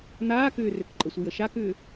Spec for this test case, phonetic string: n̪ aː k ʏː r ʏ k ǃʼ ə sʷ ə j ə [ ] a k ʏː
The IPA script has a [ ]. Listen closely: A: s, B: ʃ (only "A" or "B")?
B